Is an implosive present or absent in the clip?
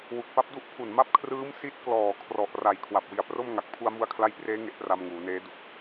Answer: absent